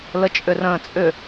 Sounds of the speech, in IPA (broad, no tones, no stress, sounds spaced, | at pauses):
l ə t͡ʃʼ ʏ r ə̃ː t͡sʼ ʏ